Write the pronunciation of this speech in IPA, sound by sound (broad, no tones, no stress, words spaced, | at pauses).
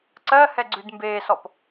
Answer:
ǀɜhɛɡ͡ǀʉd mbeːsɔp